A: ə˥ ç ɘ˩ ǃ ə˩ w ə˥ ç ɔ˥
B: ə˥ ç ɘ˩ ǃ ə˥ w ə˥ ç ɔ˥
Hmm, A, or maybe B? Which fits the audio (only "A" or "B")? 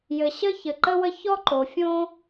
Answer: B